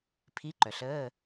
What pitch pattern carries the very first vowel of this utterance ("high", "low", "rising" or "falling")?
rising